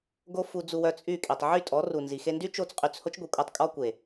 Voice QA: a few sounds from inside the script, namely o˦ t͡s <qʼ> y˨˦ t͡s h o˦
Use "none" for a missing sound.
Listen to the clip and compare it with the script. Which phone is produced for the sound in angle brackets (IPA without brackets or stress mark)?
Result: qʼ